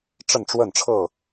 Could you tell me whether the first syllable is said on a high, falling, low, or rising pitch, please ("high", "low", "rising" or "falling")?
falling